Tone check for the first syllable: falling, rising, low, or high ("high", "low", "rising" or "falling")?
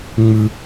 high